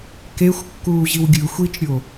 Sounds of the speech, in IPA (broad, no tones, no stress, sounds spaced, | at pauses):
k e xʷ kː uː ʑ i w ɡʲ ɯ xʷ i t͡ʃ ɾʲ o